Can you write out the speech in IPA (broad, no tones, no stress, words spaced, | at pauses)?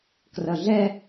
krʌɮɛ